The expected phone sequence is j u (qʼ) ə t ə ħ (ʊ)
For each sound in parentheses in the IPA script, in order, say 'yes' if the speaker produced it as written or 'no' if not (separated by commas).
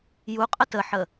yes, no